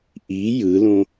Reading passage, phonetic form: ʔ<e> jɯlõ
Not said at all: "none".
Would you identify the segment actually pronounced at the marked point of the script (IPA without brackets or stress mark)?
i